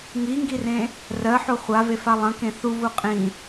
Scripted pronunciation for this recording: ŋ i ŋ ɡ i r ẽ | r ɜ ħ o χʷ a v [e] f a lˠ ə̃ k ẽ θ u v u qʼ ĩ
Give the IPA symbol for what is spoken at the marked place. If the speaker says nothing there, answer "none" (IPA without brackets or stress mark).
e